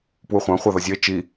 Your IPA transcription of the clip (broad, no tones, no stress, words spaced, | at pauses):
pwuχʷɑ̃ χʷɑðʌzʲʌɪ̯ t͡ʃi